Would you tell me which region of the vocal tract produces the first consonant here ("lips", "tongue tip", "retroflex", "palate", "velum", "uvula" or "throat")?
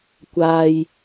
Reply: velum